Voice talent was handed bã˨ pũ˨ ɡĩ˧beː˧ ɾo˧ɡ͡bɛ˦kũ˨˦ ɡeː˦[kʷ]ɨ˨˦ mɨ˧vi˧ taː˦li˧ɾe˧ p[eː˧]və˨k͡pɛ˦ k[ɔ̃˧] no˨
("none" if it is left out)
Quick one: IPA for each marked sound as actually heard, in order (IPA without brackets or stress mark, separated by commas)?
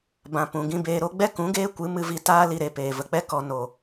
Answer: kʷ, eː˨, ɔ˧